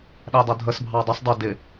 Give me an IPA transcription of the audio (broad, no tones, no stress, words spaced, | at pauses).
ɗædˤʌdʱəs bʱɑdˤɪsˤ dˤʊ dɪ